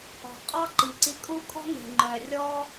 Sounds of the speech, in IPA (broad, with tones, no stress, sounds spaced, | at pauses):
ɔ̤˨ qʼ ɑ˦ ǃ i˨ ǀ i˧ kʼ u˦ kʼ ɔ̤˦ ŋ e̤˨ ŋ͡ǃ œ˨ rʲ ɔ˦